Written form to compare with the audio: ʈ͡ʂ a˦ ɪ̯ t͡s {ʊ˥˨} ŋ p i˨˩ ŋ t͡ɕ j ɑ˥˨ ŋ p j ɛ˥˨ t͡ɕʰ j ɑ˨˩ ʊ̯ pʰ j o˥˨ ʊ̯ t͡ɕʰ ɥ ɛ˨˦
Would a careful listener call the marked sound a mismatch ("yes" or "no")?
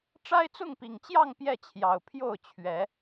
no